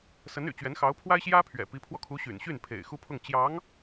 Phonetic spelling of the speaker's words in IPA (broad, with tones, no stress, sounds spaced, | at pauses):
s ə˧˥ n y̰˨˩ t͡ɕ ɥ ɛ˧˥ n x ɑ˧˥ ʊ̯ pʰ w a˥ ɪ̯ ɕ j ä˥ pʰ ɥ ɛ̰˨˩ p i˧˥ pʰ w ɔ˧ kʰ u˧˥ ɕ y̰˨˩ n ɕ y˥˩ n pʰ ḛ˨˩ ɪ̯ x u˥ pʰ ʊ˥˩ ŋ t͡ɕ j ɑ˧˥ ŋ